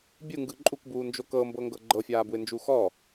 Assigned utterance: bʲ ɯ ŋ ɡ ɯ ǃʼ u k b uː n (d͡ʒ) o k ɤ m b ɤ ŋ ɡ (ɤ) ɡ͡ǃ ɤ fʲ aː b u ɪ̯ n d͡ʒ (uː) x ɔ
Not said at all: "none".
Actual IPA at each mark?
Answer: d͡ʒ, ɤ, uː

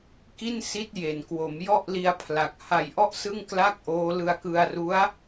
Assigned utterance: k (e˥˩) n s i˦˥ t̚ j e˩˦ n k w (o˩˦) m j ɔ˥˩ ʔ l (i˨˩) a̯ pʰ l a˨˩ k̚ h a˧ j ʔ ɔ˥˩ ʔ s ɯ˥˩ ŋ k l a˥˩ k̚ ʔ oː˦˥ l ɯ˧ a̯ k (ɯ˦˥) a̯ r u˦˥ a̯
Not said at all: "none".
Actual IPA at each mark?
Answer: i˥˩, o˩˦, i˧, ɯ˧

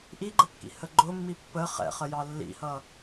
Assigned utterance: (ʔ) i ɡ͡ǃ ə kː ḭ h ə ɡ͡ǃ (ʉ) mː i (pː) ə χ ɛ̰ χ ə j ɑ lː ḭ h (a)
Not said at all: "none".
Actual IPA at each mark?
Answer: ʔ, ʊ, pː, ʌ

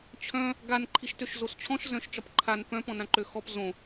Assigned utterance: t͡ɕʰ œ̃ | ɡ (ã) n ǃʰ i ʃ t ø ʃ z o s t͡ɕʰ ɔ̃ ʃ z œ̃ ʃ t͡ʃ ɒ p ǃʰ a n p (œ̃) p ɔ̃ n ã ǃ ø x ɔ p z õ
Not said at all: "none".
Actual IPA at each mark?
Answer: a, œ̃

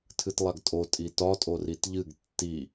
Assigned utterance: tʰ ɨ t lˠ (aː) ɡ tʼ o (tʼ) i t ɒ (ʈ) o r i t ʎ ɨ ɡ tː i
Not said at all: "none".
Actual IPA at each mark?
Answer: a, tʼ, tʼ

